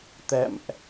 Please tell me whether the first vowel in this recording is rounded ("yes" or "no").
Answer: no